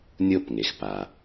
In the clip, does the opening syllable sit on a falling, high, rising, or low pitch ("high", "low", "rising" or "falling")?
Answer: falling